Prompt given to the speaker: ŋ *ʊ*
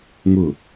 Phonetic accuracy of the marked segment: correct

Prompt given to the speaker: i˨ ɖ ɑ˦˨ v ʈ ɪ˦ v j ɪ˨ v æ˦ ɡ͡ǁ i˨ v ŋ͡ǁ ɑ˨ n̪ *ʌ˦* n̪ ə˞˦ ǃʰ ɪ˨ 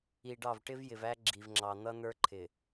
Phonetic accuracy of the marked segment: correct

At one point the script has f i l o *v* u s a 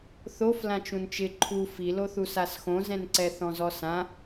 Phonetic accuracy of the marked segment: incorrect: θ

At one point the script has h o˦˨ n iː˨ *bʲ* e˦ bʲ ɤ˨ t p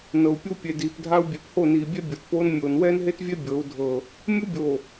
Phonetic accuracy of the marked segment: correct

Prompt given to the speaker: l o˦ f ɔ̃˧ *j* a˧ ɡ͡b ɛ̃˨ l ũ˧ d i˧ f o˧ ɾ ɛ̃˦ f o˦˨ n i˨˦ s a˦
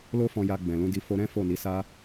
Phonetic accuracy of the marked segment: correct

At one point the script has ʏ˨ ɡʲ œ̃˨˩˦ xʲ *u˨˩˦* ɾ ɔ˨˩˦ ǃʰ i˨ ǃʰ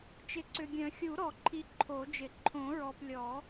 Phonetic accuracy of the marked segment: correct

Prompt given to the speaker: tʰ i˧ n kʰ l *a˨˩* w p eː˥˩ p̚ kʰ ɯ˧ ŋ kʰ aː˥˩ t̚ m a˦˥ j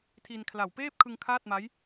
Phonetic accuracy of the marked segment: correct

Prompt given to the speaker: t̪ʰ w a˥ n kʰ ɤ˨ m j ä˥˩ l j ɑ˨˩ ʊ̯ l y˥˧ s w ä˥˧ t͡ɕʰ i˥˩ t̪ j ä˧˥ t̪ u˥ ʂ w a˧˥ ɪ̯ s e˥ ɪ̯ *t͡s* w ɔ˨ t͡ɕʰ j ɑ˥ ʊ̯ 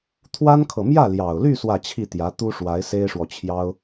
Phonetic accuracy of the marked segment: incorrect: ʂ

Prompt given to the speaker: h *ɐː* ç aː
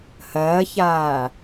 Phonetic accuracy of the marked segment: correct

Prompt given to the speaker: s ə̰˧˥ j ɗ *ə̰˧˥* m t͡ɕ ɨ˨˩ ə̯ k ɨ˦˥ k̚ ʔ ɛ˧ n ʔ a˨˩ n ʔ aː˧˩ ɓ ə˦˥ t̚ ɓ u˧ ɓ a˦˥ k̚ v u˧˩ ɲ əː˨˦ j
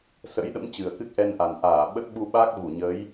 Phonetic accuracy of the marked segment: correct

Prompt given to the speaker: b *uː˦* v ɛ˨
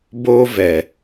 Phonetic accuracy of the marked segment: incorrect: oː˦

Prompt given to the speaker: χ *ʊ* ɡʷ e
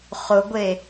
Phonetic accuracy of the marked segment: correct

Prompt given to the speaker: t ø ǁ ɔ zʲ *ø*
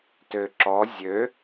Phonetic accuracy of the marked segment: correct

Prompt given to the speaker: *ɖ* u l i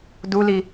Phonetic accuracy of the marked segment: incorrect: d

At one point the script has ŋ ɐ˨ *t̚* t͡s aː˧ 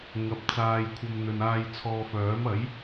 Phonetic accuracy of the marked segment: incorrect: p̚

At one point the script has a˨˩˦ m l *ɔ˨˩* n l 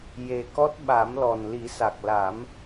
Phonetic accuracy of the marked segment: correct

